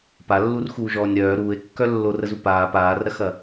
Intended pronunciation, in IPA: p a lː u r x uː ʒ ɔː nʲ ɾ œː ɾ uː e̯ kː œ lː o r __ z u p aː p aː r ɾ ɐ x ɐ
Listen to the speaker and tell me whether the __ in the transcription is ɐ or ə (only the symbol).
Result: ə